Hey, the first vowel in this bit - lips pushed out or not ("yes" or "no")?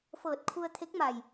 no